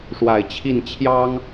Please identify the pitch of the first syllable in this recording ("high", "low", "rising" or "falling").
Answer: low